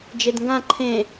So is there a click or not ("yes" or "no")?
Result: yes